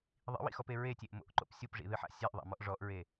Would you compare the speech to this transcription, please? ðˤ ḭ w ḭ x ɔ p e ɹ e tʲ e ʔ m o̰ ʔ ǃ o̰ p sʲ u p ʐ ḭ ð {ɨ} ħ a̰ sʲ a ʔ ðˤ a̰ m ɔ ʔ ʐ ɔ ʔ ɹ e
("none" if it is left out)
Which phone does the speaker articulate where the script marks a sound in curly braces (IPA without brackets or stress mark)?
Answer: ɨ